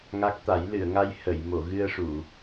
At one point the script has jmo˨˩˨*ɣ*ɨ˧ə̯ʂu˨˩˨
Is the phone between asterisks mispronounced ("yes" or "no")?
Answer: no